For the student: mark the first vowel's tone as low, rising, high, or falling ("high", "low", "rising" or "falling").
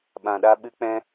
low